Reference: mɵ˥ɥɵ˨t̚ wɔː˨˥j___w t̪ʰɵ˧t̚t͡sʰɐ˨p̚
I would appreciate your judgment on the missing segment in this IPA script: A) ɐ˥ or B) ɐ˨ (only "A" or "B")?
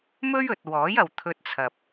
B